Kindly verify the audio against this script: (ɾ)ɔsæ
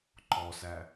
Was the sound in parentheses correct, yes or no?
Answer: no